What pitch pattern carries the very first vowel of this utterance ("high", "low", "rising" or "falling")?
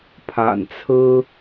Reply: low